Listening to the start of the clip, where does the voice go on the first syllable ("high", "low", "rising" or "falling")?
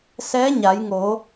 rising